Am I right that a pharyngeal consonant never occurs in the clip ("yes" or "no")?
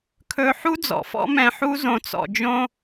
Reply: no